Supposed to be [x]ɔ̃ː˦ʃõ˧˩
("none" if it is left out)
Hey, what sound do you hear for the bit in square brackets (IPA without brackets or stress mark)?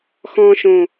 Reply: x